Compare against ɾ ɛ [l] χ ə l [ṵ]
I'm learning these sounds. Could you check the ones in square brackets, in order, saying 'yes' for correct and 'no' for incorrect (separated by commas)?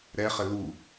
no, no